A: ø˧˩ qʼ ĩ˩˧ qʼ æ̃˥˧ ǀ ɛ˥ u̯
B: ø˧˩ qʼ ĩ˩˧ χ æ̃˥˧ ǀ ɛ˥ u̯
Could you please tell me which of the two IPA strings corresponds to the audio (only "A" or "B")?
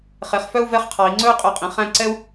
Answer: B